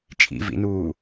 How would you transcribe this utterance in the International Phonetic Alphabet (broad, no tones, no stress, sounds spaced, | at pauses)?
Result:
t͡ʃʼ ḭ v ḭ n uː